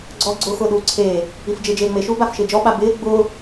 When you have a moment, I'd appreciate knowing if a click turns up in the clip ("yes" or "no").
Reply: yes